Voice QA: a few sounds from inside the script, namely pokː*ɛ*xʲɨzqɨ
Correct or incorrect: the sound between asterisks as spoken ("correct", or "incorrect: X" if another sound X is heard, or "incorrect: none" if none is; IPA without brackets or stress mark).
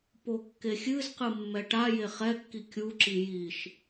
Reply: incorrect: e